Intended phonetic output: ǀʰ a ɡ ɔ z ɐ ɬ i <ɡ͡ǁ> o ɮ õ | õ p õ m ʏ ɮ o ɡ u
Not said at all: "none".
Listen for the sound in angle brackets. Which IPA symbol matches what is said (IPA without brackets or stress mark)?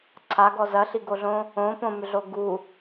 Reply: ɡ